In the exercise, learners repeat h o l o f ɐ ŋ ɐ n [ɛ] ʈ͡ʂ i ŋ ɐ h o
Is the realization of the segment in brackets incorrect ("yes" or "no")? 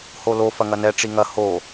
no